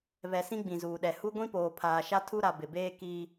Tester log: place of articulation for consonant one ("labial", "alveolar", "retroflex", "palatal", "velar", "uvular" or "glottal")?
labial